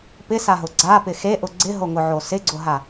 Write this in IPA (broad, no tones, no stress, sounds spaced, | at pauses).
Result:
p ɪ s a ɦ ʊ ɡ͡ǀ a p ɪ x e ʔ ʊ ɡ͡ǀ ɪ ɦ o ŋ ʊ ʕ o s ɪ ɡ͡ǀ ʊ ɦ a